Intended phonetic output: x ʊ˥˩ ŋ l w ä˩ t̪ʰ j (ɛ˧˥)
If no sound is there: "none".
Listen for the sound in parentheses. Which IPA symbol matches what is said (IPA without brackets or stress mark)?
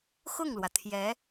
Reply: ɛ˧˥